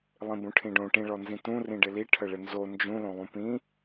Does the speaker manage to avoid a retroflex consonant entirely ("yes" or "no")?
no